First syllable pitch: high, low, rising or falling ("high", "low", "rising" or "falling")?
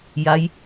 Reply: rising